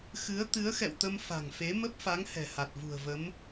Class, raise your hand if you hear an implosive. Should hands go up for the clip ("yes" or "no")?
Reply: no